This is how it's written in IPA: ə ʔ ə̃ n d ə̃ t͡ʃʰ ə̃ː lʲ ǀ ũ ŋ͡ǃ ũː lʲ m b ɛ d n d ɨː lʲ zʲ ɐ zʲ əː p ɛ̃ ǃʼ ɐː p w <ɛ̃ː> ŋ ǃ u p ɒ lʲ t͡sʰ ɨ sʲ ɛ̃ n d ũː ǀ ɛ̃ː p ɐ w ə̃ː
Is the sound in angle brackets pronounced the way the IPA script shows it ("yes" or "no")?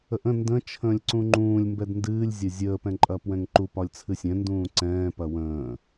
no